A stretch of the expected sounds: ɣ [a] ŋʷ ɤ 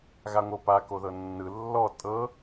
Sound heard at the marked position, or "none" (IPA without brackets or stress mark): a